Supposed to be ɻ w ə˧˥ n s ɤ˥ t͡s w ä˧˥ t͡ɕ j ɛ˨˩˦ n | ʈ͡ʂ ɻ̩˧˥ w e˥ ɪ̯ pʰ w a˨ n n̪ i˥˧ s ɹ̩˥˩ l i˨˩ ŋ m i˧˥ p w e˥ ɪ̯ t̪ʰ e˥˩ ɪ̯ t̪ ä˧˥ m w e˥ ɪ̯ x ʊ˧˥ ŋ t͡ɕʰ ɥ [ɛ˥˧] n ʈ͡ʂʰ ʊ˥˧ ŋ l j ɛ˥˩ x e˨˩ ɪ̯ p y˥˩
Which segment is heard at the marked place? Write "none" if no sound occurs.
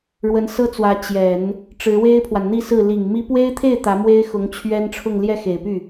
ɛ˥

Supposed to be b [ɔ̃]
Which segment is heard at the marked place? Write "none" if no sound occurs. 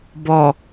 ɔ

